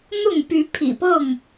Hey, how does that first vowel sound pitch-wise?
falling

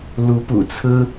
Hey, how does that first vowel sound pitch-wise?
rising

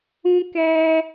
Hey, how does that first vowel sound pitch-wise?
high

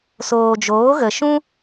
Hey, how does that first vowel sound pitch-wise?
low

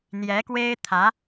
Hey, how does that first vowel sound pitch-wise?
rising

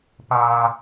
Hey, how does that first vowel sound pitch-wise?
high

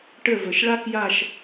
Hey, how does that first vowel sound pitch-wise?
falling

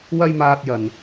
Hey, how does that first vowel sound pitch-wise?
high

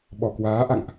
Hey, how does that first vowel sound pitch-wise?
low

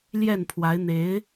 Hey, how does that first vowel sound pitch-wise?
falling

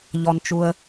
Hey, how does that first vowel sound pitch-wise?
low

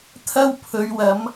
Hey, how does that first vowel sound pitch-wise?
high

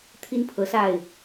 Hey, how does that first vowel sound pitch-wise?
high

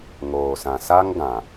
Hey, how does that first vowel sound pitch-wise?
low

